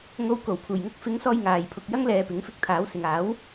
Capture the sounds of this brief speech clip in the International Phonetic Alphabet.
ŋ o˧ w k o˨˩ w pʰ uː˨˩ j ŋ ʊ˥ k̚ f ɪ˨˥ ŋ s ɔː˧ j ŋ aː˨ j pʰ ʊ˨ k̚ j ɐ˥ ŋ l ɛː˨ p ɪ˨˥ ŋ f ɪ˧ k̚ t̪ʰ aː˨˥ w s ɪ˨ ŋ aː˨˥ w

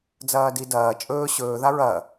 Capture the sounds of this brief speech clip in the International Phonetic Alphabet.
d͡z ɐː d i d ɐː t͡ʃʼ ɵː ɕ ɵː ð a ɹ ɐ

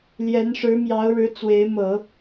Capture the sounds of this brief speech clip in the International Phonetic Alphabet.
l j ɛ˧˥ n ʂ ɻ̩˧˥ m j ɑ˧˥ ʊ̯ ɻ ɻ̩˧˥ t͡s w e˧˥ ɪ̯ m ɤ˨˩˦

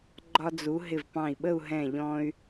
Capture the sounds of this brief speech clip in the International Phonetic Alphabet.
ɡ͡ǃ ɒ˧ d͡z u˩˧ ɦ ɪ˧˩ v p ɑ̃˧˩ i̯ ɓ ə˥˧ u̯ ɦ ɛ̃˧˩ ʎ ɔ̃˧ y̯

